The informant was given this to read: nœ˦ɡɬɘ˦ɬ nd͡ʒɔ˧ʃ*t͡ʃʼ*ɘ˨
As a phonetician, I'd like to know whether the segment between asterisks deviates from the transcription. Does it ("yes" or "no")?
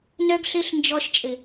no